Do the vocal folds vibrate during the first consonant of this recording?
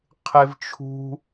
no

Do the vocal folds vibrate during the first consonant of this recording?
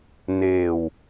yes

